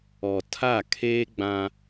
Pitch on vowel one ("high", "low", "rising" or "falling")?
low